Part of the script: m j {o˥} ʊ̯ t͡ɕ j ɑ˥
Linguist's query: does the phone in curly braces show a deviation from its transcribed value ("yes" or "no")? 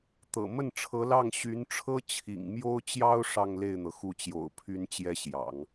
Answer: no